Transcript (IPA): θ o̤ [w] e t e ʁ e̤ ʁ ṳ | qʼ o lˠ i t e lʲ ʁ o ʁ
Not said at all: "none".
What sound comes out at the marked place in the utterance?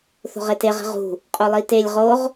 ʁ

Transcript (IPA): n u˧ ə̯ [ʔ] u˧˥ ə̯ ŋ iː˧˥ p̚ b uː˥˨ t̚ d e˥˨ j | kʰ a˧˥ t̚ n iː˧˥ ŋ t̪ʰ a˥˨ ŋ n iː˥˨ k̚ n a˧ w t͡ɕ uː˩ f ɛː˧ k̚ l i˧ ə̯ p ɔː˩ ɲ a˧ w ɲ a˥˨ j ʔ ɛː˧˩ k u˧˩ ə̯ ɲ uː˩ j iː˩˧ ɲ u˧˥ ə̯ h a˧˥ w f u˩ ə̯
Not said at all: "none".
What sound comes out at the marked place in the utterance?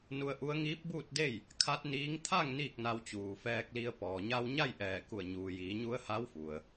ʔ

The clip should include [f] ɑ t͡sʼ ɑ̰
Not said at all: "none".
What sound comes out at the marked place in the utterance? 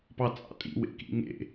p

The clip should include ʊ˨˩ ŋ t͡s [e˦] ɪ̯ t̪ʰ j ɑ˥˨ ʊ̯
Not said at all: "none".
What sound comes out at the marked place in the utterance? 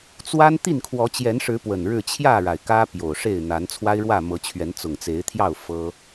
e˨˦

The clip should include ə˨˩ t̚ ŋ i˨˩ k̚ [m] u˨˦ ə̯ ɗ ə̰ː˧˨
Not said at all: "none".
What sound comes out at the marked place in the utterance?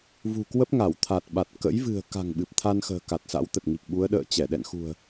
ɓ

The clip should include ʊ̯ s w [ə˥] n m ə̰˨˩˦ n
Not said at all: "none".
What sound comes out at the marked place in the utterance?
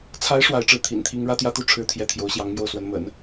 ə˧˥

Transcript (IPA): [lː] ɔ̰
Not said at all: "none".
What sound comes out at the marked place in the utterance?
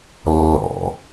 lː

